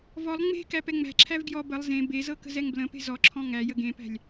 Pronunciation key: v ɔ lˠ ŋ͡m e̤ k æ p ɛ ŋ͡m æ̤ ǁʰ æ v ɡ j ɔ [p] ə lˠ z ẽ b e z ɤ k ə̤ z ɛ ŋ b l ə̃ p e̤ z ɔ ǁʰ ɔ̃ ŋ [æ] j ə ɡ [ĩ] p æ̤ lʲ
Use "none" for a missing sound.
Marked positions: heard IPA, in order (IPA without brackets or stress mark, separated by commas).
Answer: b, æ, ẽ